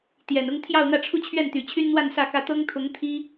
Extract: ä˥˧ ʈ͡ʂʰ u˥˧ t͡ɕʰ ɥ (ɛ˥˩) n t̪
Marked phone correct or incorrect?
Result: correct